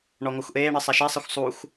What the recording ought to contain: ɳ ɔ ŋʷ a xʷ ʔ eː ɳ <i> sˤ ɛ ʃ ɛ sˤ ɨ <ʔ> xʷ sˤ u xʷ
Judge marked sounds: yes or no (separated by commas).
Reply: no, no